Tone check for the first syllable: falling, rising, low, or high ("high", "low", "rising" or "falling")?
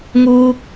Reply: high